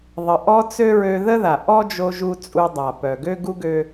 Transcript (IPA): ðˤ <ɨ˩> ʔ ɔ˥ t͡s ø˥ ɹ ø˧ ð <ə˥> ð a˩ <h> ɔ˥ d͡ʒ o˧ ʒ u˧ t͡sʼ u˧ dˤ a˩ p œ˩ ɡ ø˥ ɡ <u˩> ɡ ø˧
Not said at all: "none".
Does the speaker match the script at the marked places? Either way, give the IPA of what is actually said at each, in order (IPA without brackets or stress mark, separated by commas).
ə˩, ə˥, ʔ, u˥